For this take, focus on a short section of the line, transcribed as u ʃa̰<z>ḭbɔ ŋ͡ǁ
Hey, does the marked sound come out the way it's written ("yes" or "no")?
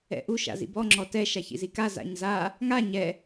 yes